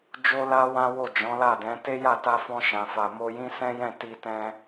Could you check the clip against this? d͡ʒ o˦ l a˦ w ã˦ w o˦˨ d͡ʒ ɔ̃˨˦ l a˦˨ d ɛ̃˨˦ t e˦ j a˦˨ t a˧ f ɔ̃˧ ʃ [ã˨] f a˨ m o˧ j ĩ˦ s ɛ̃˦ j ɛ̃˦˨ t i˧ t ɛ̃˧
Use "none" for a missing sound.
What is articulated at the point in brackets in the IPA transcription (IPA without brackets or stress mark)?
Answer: ã˨